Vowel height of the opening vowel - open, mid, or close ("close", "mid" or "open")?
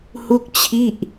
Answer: close